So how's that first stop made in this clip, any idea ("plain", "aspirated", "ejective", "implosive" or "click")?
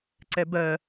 click